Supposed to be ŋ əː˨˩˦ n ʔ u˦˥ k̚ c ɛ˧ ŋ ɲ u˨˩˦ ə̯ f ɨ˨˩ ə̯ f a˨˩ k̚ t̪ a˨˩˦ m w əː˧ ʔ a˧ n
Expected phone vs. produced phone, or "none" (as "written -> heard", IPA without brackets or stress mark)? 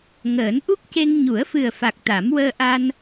ɛ˧ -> e˧